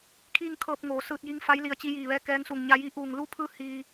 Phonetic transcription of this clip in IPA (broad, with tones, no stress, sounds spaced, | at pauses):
kʰ iː˥˨ ŋ kʰ ɤː˧ p̚ ŋ oː˩ s ɯː˧ t̚ j i˧˥ ŋ f a˧˥ j l i˧˩ ə̯ t͡ɕ i˧ j iː˧˩ ʋ ɛː˧˥ k ɛː˧˥ ŋ s u˧˩ ŋ ɲ a˧ j i˧˥ ʔ uː˧˩ ŋ l u˧˥ pʰ ɯː˧ h iː˧